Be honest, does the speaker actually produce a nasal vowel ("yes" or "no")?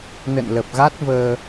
no